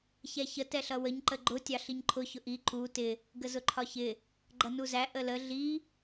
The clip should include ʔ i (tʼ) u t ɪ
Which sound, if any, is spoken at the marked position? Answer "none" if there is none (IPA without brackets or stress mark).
ǃ